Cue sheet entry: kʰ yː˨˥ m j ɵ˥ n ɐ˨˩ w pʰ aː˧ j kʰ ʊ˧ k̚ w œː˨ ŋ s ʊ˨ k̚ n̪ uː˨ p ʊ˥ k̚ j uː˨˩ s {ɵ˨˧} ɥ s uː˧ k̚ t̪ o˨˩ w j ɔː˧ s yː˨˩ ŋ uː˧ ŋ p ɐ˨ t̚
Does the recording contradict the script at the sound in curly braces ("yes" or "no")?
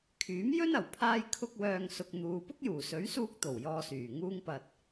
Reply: yes